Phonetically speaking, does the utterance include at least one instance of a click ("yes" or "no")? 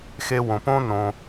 no